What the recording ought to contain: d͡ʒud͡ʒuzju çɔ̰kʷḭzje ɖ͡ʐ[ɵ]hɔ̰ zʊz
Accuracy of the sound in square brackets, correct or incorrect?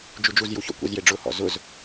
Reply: incorrect